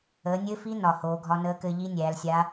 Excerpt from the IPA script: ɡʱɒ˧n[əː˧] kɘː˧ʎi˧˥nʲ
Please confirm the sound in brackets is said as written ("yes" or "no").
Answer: no